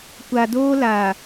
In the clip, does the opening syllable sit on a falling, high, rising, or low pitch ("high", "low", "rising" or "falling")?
low